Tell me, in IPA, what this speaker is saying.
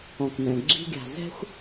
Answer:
ɔ̃˨kmɛ̃˨ɡ͡ǁi̤˦ɡʲa̤˨ zɛ̤˦xʷ

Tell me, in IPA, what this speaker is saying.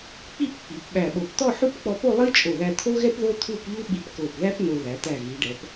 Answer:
k͡pi˥˧p k͡pi˩˧pɓæ˧˩ɓo˧˩p t̪ɔ˥˧ħu˥˧pk͡pɔ˧po˥˧ lˠi˥t͡ʃʼo˧˩ðæ˧ t̪ʰo˥ɣɛ˥p ðo˥t̪ʰu˥˧pʎu˥ ɓi˧pko˧˩pðæ˥p no˧ ðæ˩˧t̪æ˧˩ ɣi˩˧ɖɛ˩˧p

